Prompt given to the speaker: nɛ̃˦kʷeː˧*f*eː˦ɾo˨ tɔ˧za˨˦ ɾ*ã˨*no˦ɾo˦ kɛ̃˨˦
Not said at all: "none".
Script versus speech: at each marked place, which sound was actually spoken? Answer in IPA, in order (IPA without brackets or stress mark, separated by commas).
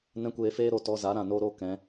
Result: f, ã˨